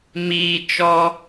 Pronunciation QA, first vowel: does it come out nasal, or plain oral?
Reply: oral